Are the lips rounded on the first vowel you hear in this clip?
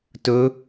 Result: yes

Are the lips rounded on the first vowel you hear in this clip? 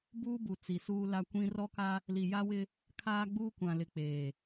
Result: yes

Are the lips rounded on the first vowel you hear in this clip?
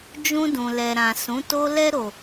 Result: yes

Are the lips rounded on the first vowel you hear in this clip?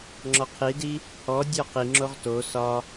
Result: yes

